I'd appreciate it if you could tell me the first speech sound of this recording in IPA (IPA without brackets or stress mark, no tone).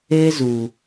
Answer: eː